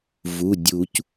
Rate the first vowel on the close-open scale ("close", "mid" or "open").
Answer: close